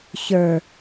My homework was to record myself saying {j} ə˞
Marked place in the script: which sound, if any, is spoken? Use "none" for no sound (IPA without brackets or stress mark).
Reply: ç